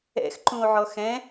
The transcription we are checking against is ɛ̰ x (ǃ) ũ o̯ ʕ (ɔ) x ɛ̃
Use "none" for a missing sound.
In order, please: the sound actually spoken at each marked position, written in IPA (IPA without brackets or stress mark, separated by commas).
ǃ, ɔ